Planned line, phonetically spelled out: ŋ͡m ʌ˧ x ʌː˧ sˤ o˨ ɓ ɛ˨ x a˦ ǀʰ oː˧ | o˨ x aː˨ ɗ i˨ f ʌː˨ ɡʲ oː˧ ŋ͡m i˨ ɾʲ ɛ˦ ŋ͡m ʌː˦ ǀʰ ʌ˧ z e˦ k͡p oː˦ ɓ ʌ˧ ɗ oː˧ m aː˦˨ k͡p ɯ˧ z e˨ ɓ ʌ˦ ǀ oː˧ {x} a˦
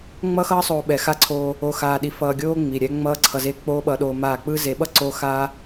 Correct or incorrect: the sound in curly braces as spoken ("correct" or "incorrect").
correct